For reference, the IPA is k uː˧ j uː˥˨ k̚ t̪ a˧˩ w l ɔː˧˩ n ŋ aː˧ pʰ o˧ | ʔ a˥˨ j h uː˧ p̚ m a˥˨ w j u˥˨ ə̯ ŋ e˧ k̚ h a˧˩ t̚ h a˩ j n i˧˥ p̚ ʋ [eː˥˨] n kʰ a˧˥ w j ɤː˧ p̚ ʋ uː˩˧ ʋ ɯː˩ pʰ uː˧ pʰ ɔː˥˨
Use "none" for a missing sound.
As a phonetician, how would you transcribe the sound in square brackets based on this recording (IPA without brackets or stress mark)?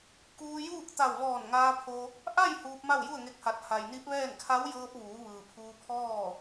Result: ɛː˥˨